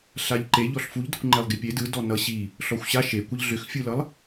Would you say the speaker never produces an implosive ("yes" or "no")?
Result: yes